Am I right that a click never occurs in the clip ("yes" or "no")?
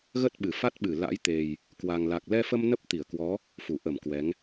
yes